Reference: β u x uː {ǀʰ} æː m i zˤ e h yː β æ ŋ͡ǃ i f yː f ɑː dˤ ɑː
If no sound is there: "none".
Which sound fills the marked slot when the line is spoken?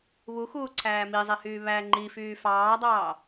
ǀʰ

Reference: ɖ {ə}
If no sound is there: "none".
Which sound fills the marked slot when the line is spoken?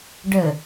ə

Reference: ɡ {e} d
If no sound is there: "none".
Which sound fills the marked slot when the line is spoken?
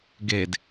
e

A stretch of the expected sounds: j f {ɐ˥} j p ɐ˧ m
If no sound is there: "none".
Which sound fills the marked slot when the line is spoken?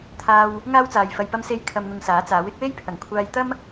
ɐ˧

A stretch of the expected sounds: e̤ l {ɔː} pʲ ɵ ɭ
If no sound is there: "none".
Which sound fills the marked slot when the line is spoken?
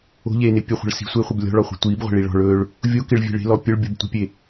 ɔ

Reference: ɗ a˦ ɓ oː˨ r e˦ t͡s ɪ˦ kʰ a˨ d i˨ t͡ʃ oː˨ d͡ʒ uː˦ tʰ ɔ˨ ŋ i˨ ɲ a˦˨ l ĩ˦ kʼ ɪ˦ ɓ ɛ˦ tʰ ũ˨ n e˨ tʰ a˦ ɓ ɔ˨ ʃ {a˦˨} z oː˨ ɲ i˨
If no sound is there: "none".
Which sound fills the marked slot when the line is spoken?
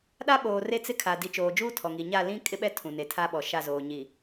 a˦˨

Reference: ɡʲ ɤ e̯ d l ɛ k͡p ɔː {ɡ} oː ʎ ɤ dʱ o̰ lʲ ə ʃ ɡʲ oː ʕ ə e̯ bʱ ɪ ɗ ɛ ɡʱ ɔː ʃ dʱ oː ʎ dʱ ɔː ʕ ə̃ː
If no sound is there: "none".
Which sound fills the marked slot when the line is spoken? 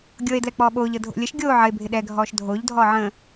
ɓ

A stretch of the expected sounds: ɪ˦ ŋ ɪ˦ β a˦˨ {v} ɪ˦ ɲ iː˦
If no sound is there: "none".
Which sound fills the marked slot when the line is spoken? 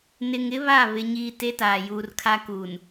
β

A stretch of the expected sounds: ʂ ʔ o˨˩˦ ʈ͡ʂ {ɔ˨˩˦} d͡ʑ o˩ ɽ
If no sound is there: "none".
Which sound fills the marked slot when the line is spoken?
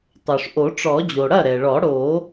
ɔ˨˩˦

